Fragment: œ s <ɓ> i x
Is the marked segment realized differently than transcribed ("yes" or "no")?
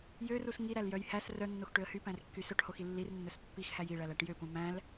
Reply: yes